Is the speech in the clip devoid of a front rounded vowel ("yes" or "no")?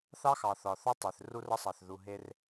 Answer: yes